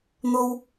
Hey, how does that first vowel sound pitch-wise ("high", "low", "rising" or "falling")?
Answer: high